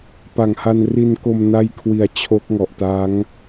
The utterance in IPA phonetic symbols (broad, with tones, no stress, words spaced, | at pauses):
pa˨˩ŋha˧n ri˧nko˧m na˥˩jkʰwi˧a̯ t͡ɕʰo˦˥k̚ŋɔ˨˩ʔtaː˦˥ŋ